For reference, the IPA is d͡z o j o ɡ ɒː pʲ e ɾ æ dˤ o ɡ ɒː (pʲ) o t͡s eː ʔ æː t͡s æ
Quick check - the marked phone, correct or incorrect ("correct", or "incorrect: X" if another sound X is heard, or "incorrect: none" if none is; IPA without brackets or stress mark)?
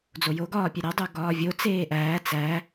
incorrect: vʲ